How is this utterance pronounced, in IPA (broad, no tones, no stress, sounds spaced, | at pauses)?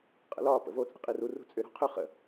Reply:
qʼ ə̰ l ɒ p ə̰ v o t͡sʼ ə̤ qʼ i r u r ṳ t͡sʼ ʏ ɾ ṳ qʰ ʏ χ ə̰